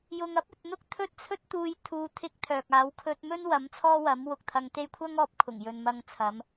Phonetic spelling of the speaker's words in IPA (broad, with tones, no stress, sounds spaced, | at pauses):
j ʊ˨ ŋ ɐ˥ p̚ ɵ˨ t̚ n̪ ʊ˥ k̚ t̪ʰ ɵ˥ t̚ t͡sʰ ɵ˥ t̚ t̪ uː˧ j t̪ʰ uː˧ t̪ʰ ɪ˥ k̚ t̪ʰ œː˨ k̚ aː˨˧ w kʰ ɵ˧ t̚ m ɵ˥ n w ɐ˨˥ m t͡sʰ ɔː˥ w ɐ˨˥ m w ʊ˨ k̚ t̪ʰ ɐ˧ ŋ t̪ e˥ j kʷʰ ɐ˥ ŋ ɔː˧ p̚ kʰ ʊ˨˩ ŋ j ɵ˨ n m ɐ˧ ŋ t͡sʰ ɐ˨˧ m